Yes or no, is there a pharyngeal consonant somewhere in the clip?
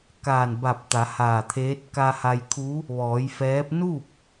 no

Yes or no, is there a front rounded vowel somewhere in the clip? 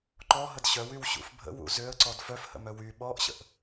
yes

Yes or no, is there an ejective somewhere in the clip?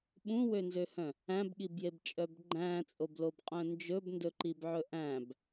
yes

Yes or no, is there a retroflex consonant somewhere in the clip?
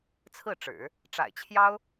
yes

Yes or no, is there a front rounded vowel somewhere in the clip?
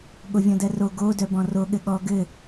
yes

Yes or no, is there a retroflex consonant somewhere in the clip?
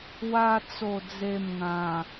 no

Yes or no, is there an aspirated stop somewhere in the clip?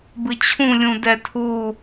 yes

